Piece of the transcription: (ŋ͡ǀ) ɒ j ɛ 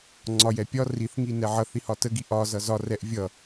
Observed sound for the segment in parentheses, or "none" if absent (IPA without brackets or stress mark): ŋ͡ǀ